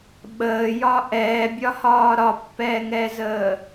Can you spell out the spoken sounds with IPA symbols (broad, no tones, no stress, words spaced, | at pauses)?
ɓəːjɒ ʔɛːbʲɒhɒː ɾɒpːɛːŋɛzəː